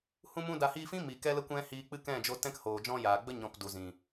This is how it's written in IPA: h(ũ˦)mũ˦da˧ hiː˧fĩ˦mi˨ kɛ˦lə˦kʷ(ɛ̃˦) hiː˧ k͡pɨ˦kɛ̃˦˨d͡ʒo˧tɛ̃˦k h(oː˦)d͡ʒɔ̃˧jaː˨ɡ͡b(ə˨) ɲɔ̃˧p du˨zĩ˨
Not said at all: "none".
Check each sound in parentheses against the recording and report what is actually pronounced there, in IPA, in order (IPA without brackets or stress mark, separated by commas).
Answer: ũ˦, ɛ̃˦, oː˨, ə˦